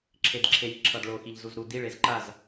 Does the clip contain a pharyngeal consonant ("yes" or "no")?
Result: no